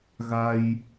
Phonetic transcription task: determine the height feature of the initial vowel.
low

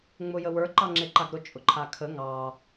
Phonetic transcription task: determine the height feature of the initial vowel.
high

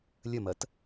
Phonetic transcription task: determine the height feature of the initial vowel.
low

